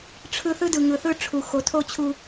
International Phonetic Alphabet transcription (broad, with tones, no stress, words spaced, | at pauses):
ʈ͡ʂʰɯ˦ θɯ˦dɯ˨ŋɯ˨θɯ˦˨ ʈ͡ʂʰu˨ xo˨tʰo˦ t͡ɕʰu˦